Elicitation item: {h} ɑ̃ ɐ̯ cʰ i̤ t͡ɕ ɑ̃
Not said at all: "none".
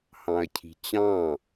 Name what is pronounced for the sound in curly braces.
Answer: h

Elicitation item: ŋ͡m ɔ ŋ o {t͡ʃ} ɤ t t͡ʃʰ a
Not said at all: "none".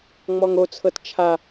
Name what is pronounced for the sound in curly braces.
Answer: t͡sʰ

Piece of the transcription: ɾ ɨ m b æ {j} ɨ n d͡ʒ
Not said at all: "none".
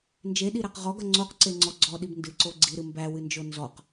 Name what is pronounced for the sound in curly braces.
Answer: w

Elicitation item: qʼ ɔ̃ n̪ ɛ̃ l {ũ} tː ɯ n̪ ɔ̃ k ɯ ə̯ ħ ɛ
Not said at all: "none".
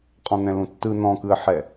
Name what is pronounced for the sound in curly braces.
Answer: ũ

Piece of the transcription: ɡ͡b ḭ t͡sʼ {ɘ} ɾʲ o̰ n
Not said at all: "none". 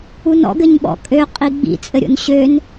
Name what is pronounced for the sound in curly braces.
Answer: ɘ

